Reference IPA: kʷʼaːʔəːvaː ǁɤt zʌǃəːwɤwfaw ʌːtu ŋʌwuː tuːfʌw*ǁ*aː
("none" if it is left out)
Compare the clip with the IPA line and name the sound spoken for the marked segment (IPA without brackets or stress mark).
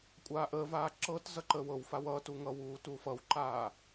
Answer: ǃ